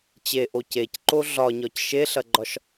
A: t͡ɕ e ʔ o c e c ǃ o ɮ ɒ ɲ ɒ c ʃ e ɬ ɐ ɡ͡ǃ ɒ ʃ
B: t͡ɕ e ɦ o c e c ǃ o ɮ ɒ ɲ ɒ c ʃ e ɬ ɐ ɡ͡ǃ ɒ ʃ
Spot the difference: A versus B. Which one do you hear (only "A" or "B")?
A